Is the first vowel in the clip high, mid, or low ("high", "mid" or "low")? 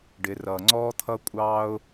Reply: high